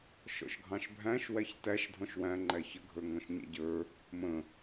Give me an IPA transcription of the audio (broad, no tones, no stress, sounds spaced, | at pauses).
ʃ ɔ̰ ʃ ɡʱ ɑ̃ ʃ bʱ æ̃ ʃ w æ ç t æ ʃ dʱ ɔ̃ ʃ w æ̃ ŋ͡ǃ æ ç ə ɡʱ ə˞ ŋ ɔ̃ ʃ ɲ ɛ̰ ɟ ə˞ | m ə̃